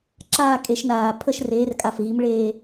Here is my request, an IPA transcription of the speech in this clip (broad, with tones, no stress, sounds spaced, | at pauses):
ǁ aː˥˧ kʼ e˨˥ ʃ n aː˧˩ pʰ ə˥˧ ʃ r eː˨˥ r kʼ a˧˩ f ɣ i˨˥ m ɭ eː˥˧